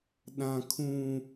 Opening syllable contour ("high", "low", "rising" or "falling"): low